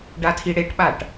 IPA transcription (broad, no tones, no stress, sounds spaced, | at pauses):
ɖ a tʰ i ɽ e ʈ ɓ a ʈ